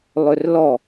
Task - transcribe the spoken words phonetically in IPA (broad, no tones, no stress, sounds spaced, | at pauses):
lˠ ø r l ɔ